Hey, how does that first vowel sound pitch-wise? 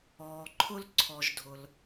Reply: low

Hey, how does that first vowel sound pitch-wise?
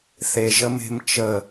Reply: low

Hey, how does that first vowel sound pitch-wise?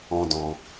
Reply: high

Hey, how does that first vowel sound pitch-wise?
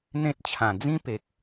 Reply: high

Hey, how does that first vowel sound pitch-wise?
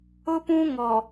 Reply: high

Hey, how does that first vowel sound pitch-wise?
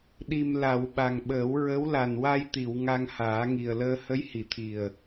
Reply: low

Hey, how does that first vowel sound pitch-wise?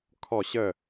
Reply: falling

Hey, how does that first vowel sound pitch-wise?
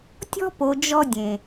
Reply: high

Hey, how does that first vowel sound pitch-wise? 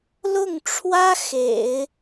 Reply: falling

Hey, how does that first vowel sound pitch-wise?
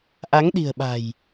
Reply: rising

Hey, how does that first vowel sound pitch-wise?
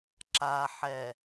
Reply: low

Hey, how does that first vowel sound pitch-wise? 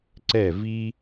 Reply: falling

